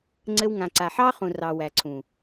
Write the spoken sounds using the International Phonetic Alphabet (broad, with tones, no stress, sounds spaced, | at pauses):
ŋ͡ǀ ɘ˧ w ŋ ã˨ ǀ a˨ ħ ɑ˦ χ ũ˨ r ɑ˨ w æ˨ ǀʰ ũ˨